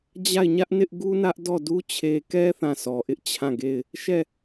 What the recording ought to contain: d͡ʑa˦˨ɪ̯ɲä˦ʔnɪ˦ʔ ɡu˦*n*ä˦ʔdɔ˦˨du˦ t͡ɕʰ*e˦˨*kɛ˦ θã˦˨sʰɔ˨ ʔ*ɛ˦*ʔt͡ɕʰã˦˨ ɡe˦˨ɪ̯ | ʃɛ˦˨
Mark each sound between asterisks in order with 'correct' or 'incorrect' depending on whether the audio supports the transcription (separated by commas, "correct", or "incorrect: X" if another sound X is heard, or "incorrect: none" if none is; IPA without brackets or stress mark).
correct, incorrect: e˨, incorrect: ɪ˦